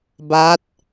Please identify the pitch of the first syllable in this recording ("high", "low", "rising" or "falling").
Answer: rising